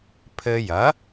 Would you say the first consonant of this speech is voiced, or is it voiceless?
voiceless